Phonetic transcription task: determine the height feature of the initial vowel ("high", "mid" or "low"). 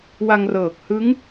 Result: low